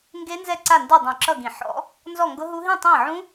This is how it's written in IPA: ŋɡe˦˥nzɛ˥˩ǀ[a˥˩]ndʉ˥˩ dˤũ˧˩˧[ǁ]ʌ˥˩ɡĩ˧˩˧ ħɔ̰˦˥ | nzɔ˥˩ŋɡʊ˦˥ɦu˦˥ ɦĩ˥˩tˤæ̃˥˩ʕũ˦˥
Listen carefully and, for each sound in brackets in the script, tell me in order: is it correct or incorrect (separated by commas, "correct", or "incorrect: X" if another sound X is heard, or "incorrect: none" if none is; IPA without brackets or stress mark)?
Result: correct, correct